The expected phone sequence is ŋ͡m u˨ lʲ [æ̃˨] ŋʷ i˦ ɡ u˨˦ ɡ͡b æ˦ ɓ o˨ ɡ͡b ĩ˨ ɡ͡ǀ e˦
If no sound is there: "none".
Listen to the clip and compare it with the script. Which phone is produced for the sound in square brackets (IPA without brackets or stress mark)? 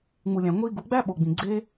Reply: æ̃˨